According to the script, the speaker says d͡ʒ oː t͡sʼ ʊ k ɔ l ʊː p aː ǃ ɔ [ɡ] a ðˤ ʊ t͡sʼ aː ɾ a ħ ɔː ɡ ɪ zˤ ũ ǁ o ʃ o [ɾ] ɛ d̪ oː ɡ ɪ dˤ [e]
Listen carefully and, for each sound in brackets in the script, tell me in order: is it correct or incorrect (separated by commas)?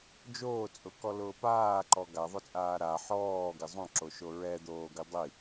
correct, incorrect, incorrect